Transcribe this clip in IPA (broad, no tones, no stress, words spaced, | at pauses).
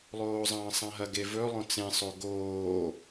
lˠoːzˤɐ̃ːsˤãɦɐ ɡevɵ lˠõt͡sẽsˤo ɡoː